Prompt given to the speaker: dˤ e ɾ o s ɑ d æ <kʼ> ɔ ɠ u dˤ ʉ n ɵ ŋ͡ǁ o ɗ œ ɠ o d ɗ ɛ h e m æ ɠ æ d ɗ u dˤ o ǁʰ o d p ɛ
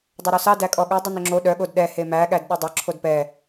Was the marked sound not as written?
no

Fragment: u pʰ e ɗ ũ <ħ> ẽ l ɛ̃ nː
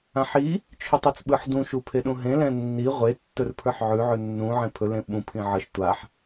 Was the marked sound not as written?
yes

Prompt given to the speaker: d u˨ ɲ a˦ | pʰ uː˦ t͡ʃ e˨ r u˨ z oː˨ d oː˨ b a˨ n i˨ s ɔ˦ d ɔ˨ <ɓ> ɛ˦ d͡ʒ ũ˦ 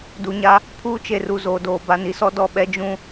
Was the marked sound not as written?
no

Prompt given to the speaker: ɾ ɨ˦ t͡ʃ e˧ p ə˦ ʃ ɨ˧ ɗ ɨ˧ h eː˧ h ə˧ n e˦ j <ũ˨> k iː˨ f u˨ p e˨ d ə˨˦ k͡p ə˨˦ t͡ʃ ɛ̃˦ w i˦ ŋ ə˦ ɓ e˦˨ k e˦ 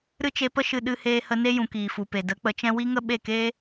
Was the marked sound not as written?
no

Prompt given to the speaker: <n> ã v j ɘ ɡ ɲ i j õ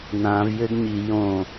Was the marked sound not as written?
no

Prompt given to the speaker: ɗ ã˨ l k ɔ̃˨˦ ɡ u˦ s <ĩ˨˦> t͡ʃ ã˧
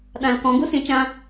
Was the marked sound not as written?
no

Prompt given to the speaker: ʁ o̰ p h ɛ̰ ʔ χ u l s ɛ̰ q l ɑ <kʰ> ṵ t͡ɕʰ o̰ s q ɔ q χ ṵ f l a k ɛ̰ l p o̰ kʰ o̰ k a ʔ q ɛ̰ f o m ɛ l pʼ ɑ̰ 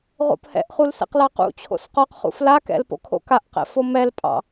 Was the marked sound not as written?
yes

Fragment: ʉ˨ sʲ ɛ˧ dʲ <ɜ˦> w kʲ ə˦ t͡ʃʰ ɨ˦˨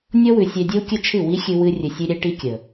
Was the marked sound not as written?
yes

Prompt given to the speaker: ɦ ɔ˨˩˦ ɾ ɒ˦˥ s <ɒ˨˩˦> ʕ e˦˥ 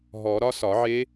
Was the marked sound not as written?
no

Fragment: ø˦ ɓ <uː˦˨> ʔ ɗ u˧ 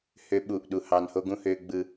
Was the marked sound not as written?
yes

